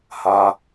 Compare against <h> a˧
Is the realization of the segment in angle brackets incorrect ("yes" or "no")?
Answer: no